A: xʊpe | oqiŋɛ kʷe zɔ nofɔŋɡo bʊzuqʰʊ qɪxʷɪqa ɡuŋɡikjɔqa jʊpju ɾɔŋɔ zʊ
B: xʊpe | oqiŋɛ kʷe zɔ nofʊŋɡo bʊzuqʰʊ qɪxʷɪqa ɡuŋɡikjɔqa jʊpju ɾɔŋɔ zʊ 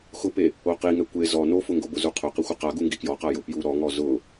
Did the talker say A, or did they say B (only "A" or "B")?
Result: B